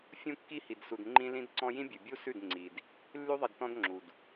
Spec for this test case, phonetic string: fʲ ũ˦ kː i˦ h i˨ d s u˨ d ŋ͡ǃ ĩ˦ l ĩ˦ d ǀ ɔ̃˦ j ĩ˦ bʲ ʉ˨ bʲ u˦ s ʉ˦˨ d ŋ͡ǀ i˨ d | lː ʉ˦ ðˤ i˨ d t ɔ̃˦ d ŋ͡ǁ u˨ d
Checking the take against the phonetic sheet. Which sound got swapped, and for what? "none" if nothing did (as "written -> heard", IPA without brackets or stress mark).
none